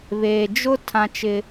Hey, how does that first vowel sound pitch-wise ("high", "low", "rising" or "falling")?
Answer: low